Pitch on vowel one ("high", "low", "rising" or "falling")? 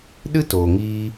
high